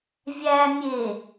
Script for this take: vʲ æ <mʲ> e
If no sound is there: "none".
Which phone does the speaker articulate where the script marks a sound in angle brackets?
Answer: mʲ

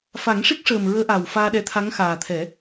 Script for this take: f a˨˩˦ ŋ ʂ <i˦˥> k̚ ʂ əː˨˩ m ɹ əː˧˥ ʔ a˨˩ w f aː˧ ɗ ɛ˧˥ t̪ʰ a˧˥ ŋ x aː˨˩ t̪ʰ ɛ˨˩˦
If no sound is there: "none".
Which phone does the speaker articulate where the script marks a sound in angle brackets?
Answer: i˦˥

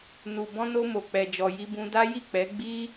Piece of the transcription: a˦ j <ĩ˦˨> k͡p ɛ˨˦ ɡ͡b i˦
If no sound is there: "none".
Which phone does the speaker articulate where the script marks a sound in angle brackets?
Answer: i˦˨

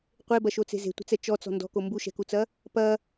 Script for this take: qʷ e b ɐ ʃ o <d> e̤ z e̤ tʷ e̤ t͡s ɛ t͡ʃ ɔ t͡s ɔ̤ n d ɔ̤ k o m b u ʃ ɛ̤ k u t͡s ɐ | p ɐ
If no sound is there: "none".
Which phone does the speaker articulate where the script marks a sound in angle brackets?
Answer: t͡s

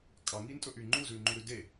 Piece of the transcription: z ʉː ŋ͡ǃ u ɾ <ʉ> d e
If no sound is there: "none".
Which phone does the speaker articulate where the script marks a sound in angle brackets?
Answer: ʉ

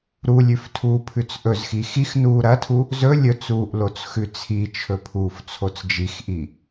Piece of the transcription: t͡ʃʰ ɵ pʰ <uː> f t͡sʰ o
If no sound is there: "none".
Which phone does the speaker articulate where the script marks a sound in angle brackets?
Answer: uː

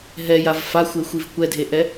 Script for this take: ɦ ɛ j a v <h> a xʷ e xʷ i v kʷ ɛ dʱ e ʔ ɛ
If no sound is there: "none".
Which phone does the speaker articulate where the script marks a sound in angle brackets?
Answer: f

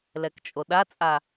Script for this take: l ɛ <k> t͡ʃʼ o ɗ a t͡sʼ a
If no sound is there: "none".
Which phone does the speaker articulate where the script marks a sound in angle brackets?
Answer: k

